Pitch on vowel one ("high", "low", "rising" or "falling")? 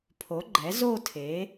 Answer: rising